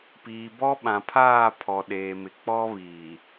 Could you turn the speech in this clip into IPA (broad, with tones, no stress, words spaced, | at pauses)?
piː˨bɔ˦ɓã˨pʰaː˦˨ pʰɔ˨ɗeː˨mɪ˨ k͡pɔ˦βiː˨